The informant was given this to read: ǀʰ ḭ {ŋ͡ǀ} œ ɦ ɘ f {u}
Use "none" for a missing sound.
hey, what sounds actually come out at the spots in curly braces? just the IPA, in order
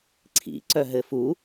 ǀ, u

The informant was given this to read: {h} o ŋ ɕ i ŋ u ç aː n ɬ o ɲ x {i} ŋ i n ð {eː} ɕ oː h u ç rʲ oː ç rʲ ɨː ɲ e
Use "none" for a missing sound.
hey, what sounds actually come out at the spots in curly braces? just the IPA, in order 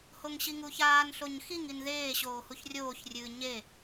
h, i, eː

